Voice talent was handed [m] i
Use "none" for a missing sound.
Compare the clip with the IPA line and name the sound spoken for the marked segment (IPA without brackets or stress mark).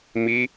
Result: m